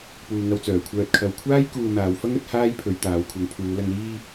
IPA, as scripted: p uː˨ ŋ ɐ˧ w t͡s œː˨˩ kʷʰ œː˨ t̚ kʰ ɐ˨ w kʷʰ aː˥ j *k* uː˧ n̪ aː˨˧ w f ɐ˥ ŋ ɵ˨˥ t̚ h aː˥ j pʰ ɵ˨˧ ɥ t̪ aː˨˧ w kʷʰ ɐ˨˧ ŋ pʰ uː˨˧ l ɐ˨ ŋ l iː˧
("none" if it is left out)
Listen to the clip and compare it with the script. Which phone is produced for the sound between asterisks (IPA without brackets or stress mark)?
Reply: k